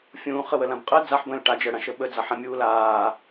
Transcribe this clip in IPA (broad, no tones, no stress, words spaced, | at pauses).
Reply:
fʲũːχəwəlãb qʼə d͡zaħ bə̃ːlʈa d͡ʒəɽãʃə ɓəd͡zaħã mʲuːlaː